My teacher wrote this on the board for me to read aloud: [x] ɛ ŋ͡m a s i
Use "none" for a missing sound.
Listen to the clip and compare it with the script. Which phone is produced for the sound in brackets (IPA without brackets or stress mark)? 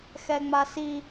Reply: x